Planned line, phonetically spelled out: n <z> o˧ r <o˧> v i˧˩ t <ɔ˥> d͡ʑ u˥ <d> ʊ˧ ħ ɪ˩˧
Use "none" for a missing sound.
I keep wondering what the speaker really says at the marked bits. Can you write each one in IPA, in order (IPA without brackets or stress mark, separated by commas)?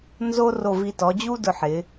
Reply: z, o˧˩, ɔ˩˧, d